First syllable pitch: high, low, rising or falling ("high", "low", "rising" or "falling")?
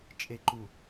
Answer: low